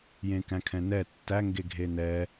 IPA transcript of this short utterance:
jẽkæ̃kʰɛ̃nɛ tːæ ŋɡeɡʱenɛ

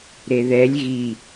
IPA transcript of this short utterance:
ɾeðɛlʲ ɣi

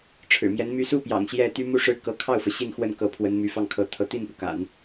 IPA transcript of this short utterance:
ʈ͡ʂʰɻ̩˨˩mjɛ˧˥n my˧˥su˥˩pjɑ̰˨˩ŋ ɕjɛ˥˩t̪y˥ mu˥˧ʂɻ̩˥˩ kɤ˧˥kʰɑ˥˩ʊ̯fɤ˩ ɕi˥˧nxwə˥˩nkɤ˧˥ pʰwə˧˥nmy˧˥fɑ˥˩ŋ kʰɤ˧˥t̪ʰɤ˧˥ t̪i˥˩npu˩ ka̰˨˩˦n

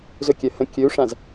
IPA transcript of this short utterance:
zɵkʲɜ hə̃ kʲɵu̯ʂãz

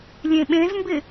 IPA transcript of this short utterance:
lʲẽɓẽzmbɪ

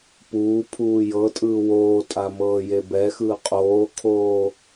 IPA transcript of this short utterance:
puːpʰuː jɤtʼɯː woːtʼa mɤːjebɛxɯː qʼoːkʰoː

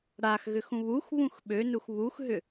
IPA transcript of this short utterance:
ɽaxɣʏx ũβuxβũx ɓønux βuxɦʏ

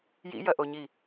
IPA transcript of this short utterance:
jḭjɐʔoɲi

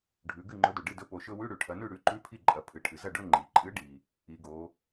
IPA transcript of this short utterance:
ɖʱʉ˩˧ɡɨ˥˩ŋ͡ǃɵ˨˥dɵ˩ ɖɨ˥˩dɵ˨˥ po˩˧ʃɵ˧˥˧ wʉ˧˥˧ɽʉ˩ʈʰɐ˩˧nʉ˥˩ ɽʉ˨˥ǃʉ˧˥˧pʰi˥˩ǃʼɐ˩˧ pʰɨ˩ʈʰɨ˩zɐ˥˩ɖɵ˧˥˧ ŋ͡ǃi˩ǃʼɨ˨˥ɖi˩ | i˩˧ɡo˩˧

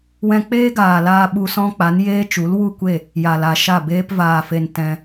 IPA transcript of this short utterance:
wɛ̃˧k͡peː˦ɡaː˨laː˧ ɓu˧sɔ̃˦k͡pa˨˦n jeː˦t͡ʃu˨˦l wu˦˨kʷe˦˨ | ja˨la˨ʃa˦˨beː˦p vaː˨fe˨n tɛ̃˧

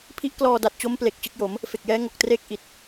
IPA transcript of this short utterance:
pʰi˦˥ʔklɔː˧da˨˩t̚t͡ɕo˦˥m ple˨˩k̚ t͡ɕɯ˦˥k̚jo˩˦m | fe˨˩k̚jɛː˦˥ ŋo˨˩k̚treː˥˩k̚ ʔi˨˩t̚

